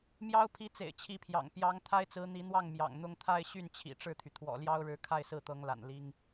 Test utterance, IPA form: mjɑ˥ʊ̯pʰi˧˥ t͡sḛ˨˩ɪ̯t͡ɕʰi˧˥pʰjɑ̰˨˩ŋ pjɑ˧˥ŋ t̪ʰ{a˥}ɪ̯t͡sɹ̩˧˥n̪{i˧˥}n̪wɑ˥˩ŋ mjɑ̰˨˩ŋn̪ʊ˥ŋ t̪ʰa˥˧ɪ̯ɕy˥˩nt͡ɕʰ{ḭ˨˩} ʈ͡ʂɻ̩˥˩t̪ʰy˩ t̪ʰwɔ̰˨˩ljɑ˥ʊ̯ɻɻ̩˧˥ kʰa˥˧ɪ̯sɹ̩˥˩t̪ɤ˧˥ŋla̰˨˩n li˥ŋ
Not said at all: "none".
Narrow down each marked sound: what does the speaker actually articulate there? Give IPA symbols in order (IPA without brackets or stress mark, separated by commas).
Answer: a˥, i˧˥, ḭ˨˩